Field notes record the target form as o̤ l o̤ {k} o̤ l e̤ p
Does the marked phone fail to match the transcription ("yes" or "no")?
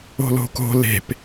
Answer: no